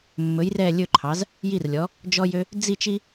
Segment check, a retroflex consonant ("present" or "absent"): absent